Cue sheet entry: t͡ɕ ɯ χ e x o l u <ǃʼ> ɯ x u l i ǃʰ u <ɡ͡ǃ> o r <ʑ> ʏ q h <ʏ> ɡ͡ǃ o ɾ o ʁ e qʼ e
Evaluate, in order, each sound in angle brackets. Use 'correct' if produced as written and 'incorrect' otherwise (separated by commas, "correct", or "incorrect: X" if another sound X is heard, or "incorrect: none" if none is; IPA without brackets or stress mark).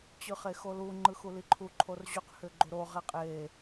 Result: incorrect: ŋ͡ǃ, incorrect: ǃʰ, correct, correct